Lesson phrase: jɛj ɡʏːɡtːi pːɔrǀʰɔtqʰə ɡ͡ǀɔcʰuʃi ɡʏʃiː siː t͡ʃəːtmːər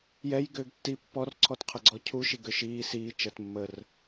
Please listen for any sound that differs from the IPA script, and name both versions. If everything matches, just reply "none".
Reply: none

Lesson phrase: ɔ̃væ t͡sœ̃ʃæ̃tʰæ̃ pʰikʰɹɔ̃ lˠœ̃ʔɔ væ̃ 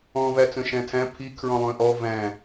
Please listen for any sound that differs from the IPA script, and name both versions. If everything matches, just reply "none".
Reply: none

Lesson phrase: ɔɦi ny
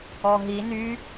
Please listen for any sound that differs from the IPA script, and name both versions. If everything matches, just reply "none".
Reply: none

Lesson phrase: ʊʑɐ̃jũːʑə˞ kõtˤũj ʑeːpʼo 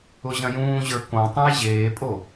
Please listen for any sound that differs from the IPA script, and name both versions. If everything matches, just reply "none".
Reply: none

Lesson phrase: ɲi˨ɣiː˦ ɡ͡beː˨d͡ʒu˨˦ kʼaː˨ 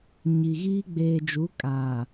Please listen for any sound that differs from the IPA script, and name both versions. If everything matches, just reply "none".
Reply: none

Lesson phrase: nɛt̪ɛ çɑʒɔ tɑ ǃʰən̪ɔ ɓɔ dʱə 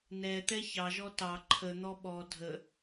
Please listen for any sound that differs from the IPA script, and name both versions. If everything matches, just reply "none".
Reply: none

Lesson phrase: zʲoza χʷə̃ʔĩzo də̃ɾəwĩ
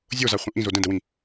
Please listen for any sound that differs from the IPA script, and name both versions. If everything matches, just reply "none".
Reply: ɾ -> d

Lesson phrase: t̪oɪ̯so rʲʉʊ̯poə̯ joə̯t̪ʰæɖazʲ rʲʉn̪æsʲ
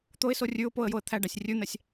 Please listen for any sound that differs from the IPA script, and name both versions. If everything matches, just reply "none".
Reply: zʲ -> sʲ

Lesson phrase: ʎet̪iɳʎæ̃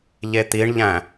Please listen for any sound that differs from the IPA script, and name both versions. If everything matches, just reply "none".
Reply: none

